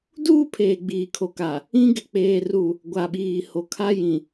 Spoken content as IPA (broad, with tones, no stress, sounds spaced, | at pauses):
d uː˦ pʰ eː˨ ɡ͡b iː˨ kʰ o˨ k a˨ | ĩ˦ ɡ ɪ˨ k͡p eː˨ r u˨ | ɡʷ a˨ ɓ iː˨ h o˨ kʰ a˦ j ĩ˨